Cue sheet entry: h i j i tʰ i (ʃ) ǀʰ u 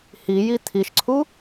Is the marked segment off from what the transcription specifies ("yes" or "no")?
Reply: no